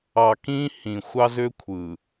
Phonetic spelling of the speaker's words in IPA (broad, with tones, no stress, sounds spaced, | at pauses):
ɑ˨ k ĩ˦ h ĩ˨ xʷ ɑ˦ z ø˦ kʷʰ ɯ˨